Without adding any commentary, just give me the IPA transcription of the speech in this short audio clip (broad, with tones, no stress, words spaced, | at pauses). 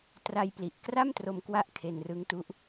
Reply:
tra˧jpli˨˩ʔkra˥˩m tro˧mkwa˦˥ʔ kʰe˧nrɯ˦˥ŋtu˦˥ʔ